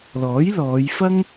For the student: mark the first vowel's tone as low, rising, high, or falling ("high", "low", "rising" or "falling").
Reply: rising